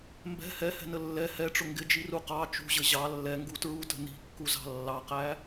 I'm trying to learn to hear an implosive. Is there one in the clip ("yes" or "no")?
no